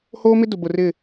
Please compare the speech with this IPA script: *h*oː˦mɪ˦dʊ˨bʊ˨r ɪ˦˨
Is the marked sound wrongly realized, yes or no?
no